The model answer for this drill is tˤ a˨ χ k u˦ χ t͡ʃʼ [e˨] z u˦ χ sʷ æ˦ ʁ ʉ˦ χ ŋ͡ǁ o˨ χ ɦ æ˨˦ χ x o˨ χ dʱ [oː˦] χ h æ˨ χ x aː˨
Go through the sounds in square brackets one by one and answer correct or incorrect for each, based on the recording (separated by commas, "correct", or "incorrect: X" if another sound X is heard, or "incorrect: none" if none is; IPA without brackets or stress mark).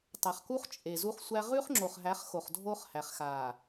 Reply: correct, correct